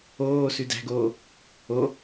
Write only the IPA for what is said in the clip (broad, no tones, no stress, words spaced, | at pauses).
oː sʉdæ̤ɡoː | o